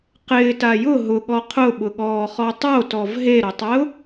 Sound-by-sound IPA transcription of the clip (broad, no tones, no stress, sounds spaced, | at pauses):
q ɪː t a j ʊ ɦ ʊ ɠ ɔ qʰ ʊ ɓ ʊ ɠ ɔː χ ɔ tˤ o t ɔ v ɦ e ɾ ʊ tˤ ɛ ʊ̯